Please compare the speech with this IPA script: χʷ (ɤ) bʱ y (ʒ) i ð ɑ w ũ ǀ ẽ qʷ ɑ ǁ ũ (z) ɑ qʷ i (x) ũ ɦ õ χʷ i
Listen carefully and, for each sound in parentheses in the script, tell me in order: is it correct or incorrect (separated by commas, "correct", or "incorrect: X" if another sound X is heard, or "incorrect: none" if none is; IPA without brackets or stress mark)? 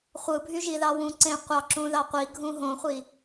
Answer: incorrect: ɯ, correct, incorrect: ð, incorrect: ɡʱ